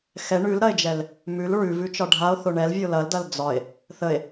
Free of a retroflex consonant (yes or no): no